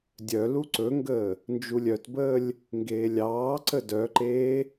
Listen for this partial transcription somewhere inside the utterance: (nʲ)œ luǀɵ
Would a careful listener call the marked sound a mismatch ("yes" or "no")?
yes